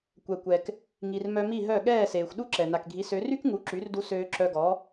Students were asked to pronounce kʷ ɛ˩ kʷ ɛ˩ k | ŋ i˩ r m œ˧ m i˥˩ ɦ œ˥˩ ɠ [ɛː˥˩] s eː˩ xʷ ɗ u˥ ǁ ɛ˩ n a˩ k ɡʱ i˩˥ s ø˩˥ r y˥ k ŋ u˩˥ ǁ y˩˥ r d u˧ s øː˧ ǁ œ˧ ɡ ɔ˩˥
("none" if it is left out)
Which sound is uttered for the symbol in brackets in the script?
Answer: ɛː˥˩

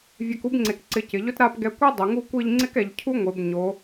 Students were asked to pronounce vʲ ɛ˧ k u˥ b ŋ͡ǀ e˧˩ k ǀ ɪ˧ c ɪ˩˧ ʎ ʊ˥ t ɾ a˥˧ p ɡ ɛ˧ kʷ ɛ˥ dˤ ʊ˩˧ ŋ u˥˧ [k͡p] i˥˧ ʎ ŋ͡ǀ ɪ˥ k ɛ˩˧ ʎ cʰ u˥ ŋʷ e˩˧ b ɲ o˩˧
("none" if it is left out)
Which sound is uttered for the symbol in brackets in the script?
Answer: kʷ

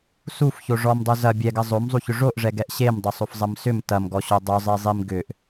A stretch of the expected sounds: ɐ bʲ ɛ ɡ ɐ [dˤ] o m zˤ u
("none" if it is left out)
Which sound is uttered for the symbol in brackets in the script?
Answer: zˤ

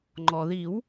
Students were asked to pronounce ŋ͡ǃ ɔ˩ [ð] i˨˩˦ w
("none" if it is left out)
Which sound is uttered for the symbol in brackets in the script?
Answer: ð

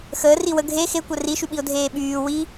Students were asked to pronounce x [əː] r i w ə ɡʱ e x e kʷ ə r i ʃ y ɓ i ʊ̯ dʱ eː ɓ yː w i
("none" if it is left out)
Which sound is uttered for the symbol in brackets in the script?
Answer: əː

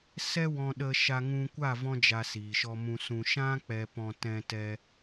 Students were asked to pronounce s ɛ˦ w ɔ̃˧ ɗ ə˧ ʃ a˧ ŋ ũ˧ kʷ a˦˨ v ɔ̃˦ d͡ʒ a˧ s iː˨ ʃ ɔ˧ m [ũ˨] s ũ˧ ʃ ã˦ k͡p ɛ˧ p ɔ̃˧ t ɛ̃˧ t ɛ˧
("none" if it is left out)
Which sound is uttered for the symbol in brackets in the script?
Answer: ũ˧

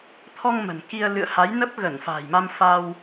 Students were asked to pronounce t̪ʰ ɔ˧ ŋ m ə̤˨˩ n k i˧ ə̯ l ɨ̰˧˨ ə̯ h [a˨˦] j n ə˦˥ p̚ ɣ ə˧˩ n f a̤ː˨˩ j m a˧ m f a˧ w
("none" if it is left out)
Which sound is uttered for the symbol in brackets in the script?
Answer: a˨˦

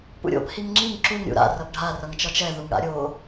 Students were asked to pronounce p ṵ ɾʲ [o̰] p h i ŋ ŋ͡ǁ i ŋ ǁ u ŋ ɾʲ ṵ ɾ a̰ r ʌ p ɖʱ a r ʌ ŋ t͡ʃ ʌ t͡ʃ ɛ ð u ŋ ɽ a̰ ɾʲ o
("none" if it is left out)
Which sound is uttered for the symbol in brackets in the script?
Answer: o̰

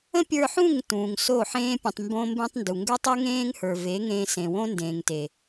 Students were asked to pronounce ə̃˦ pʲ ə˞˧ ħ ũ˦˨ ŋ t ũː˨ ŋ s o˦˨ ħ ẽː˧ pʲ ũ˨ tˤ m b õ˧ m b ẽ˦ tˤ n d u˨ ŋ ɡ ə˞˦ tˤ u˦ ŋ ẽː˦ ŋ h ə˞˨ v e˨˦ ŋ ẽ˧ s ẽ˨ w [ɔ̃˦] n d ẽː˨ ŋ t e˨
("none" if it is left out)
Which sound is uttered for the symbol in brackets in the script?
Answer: õ˦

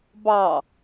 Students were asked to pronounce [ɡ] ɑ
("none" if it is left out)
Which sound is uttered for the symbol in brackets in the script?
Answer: b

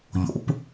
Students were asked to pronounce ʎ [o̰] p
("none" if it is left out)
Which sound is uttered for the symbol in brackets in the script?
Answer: o̰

